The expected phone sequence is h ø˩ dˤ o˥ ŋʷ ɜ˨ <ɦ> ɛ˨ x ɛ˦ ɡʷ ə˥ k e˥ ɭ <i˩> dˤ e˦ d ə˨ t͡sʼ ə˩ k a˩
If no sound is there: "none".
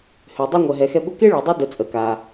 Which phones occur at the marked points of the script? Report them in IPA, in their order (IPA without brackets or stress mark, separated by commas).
ɦ, i˩